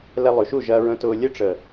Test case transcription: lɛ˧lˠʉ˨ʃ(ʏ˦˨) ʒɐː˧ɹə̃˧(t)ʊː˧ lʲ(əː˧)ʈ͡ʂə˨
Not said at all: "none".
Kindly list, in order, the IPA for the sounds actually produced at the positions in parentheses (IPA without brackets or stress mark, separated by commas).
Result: u˦˨, t, ə˧